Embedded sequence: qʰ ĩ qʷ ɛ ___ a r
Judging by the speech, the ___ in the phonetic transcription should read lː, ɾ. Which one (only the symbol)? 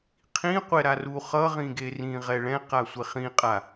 ɾ